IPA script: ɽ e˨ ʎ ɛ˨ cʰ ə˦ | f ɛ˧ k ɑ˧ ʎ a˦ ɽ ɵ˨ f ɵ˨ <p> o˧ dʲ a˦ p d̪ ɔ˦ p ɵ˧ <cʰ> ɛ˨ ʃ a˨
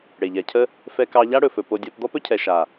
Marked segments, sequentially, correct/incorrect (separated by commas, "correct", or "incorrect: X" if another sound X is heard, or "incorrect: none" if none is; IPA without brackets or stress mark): correct, correct